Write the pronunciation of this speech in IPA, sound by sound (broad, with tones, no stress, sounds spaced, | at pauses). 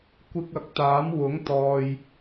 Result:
kʷ ɪ˧ k̚ ɐ˨ k̚ t̪ aː˨˥ m w ʊ˨˥ ŋ t̪ ɔː˨ j